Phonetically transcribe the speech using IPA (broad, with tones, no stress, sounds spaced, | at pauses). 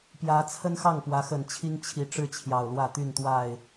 p j ä˨˦ t͡sʰ ə˦ n x ɑ˥˨ ŋ p w ä˨˦ x ə˨˩ n t͡ɕʰ i˦ ŋ t͡ɕʰ i˨˦ ʈ͡ʂ ɻ̩˥˨ t͡ɕʰ j ɑ˨˩ ʊ̯ l w ä˥˨ t̪ y˥˨ n t̪ w a˥˨ ɪ̯